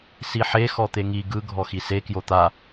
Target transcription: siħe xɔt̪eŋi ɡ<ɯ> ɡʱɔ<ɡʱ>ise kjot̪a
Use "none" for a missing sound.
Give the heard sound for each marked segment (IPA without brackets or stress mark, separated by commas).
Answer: ɯ, x